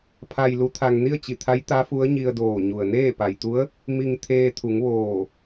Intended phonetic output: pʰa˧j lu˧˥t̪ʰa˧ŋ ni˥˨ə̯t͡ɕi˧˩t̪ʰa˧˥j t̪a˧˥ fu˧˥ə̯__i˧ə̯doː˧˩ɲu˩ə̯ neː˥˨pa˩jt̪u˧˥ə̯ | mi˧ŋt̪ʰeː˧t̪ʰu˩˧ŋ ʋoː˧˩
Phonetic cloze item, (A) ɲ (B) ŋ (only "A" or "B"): A